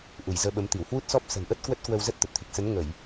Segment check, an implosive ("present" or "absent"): present